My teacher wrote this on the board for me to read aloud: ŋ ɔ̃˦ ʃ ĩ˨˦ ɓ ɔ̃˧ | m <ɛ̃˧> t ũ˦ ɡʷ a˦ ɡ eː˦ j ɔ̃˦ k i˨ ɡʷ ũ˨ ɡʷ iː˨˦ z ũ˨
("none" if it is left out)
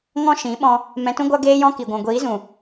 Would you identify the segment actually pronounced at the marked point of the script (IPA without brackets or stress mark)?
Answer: ɛ̃˧